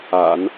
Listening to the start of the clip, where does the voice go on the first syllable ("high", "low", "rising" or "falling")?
low